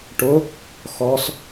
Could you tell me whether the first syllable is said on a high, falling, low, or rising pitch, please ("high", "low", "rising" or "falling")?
rising